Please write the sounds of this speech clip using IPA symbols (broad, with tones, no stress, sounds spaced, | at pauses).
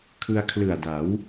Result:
kʰ ɯ˧ a̯ kʰ l ɯ˨˩ a̯ d a˩˦ w